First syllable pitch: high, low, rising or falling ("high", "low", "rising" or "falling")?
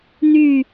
falling